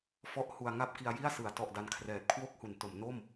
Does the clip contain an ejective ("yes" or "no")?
no